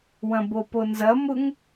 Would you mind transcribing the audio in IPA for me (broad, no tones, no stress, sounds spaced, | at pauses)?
w ɐ̃ b o p o n z ɐ m ʊ ŋ